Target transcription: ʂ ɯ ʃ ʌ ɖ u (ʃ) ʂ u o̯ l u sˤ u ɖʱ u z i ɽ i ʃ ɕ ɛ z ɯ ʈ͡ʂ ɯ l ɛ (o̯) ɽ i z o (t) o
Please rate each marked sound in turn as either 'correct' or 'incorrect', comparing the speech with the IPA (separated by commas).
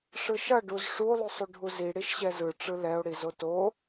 incorrect, correct, correct